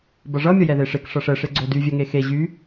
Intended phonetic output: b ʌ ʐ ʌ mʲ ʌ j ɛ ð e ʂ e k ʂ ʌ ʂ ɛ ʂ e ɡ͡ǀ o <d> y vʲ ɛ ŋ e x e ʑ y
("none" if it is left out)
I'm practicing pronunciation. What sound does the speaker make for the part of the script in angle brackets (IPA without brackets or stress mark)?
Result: d